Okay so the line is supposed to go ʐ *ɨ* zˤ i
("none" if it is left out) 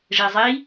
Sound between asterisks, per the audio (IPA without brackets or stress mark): e